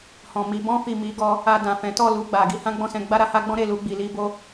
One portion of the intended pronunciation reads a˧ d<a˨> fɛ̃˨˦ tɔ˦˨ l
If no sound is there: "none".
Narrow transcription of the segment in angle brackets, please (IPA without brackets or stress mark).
ã˨